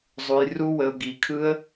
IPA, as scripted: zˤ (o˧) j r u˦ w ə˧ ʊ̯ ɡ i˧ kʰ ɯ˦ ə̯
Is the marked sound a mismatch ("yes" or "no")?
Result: yes